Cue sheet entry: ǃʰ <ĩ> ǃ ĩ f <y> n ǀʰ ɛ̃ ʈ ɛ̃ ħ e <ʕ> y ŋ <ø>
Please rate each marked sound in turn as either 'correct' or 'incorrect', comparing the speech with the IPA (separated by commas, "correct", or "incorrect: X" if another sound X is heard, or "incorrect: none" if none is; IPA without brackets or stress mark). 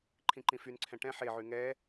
correct, correct, correct, incorrect: ɛ